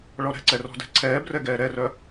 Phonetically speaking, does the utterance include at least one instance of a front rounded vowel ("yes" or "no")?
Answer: yes